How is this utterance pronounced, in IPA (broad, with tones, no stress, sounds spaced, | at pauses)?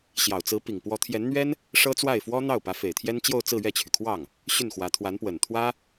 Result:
ɕ j ɑ˨˩ ʊ̯ t͡s ɹ̩˧˥ p i˨˩ ŋ p w ɔ˧˥ t̪ʰ j ɛ˧˥ n n̪ ɥ ɛ˥ n | ʂ ɤ˥ t͡s w a˥˩ ɪ̯ f w ɔ˥ n̪ ɑ˥˩ ʊ̯ p ä˧˥ f e˨˩ ɪ̯ t̪ʰ j ɛ˥ n t͡ɕ j o˥˧ ʊ̯ t͡s ɹ̩˥˧ ɥ ɛ˥˩ t͡ɕʰ y˩ kʰ w ɑ˥˩ ŋ | ɕ y˥˩ n x w ä˧˥ t̪ʰ w a˧˥ n p w ə˨˩ n t̪ʰ w ä˥